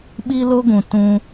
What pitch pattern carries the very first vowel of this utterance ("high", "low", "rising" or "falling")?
high